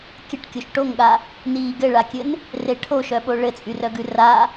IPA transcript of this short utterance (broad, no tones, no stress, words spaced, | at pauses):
kʲəʈ kʲoʃʈoŋɠa | niːɡɘɭakʲɘn | reʈʰoʃœɓo ɭɘt͡sʼyrœɡʉ ra